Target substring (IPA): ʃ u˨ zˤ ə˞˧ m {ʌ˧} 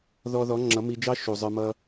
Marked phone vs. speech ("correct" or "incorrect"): correct